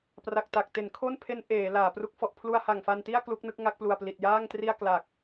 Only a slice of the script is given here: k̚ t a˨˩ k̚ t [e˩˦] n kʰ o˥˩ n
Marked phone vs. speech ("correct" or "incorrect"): correct